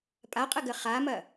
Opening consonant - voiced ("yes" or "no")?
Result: no